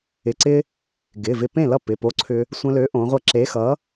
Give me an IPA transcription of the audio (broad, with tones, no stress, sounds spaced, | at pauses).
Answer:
ɪ˩˧˩ ǀ ɪ˧ | ɡ ɪ˩˧˩ v ɪ˧ p ẽ˥˩ l ʌ˥˩ p ɪ˩˧˩ p o˨˥ ǀʰ ʏ˧ | sʷ ə̃˧ l ø˨˥ ʔ õ˩˧ ʁʷ ʌ˧˩ ǁ e˨˥ x ʌ˨˥